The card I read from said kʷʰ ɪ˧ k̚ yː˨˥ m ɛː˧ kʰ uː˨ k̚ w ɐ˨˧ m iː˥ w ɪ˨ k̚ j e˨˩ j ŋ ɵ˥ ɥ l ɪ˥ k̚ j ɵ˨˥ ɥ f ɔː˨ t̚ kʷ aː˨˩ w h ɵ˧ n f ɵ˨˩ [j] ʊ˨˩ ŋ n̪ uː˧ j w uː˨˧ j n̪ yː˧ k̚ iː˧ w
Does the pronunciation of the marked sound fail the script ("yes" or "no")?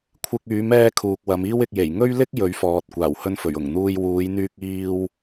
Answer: yes